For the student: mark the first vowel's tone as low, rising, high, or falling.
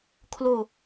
falling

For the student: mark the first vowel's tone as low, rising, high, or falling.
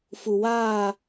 low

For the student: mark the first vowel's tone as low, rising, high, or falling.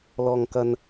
high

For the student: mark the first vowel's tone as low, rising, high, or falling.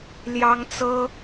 high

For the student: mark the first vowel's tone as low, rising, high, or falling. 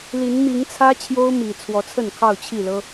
rising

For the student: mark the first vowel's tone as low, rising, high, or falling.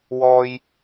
high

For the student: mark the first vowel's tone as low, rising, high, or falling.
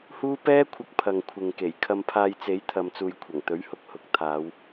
high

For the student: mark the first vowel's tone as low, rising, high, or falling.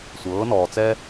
rising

